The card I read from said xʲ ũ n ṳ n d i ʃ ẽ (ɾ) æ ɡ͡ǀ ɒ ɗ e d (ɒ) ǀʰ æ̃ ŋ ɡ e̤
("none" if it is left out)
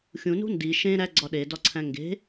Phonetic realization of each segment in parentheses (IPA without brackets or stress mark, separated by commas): ɾ, ɒ